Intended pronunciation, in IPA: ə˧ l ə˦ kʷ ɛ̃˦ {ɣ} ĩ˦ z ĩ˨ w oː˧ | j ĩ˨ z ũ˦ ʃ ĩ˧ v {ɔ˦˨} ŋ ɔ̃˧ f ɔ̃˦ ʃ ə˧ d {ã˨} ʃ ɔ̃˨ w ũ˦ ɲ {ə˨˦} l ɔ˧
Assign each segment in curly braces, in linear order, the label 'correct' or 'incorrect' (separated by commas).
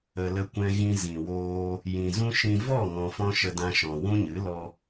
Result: correct, correct, incorrect, incorrect